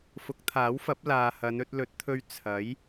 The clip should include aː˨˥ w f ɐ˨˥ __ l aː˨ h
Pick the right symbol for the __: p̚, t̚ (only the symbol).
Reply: p̚